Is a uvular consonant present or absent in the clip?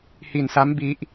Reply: absent